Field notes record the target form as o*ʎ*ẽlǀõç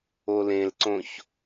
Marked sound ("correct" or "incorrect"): incorrect